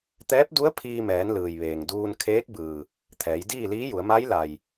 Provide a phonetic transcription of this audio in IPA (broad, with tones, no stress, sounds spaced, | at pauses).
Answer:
t̪ ɛː˧˥ p̚ d u˧˥ ə̯ pʰ iː˧ m ɛː˩˧ n l ɯː˩ j ʋ eː˩ ŋ d uː˧ n kʰ eː˧˥ k̚ b ɯː˩ | t̪ʰ ɛː˩˧ j d iː˥˨ l iː˧˥ j u˩˧ ə̯ m a˧˥ j l a˩ j